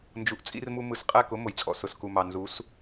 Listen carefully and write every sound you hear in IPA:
nd͡ʒu˨ʔt͡sʼḭ˧rmu˧ mɯ˨sqʼæ˦˨kʊ˦ mʊ˨jt͡sʼɔ̰˨ sʊ˨sku˨mɑ˨ nzu˨˦s

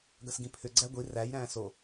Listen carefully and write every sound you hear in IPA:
ɡɐsɡĩpʰʏ ɡ͡ǀæɡʷi ræj ɾæ̃ːso

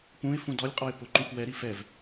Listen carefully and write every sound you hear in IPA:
pũɪ̯fũ dɔlʲqʼɔɪ̯ pʊ ǃũxwɛɾi fɛv

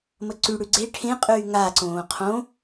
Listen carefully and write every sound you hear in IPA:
məǀyɽʉ ɡ͡ǀe ʈʰẽqʼyː ŋaǀõː qʰõ

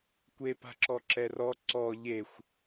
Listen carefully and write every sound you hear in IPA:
kʷepa̤ǁɔ ǁɛrɔ ǀɔ ʎexʷ

